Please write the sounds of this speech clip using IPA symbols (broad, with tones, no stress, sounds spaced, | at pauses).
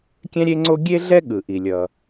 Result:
kʲ ɛ̃˥ ɾʲ e˥ ŋ͡ǀ o˥ ɡʲ e˥ ɮ ɛ˥ ɠ ɯ˩ ʔ i˩ lʲ ʌ˩